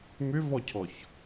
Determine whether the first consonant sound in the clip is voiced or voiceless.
voiced